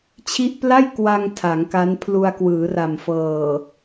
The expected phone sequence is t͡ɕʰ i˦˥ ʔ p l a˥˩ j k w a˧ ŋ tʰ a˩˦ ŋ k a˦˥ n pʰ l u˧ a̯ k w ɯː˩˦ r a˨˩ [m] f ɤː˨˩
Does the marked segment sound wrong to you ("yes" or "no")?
no